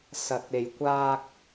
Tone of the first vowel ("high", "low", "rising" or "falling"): low